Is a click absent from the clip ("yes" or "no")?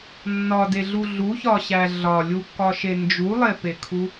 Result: yes